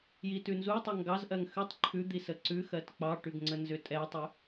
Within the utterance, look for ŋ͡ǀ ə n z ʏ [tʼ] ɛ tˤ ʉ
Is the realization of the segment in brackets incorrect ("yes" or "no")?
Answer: no